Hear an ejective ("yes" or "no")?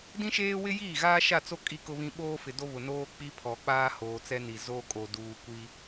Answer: yes